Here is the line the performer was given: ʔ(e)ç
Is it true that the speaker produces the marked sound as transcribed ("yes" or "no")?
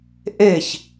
yes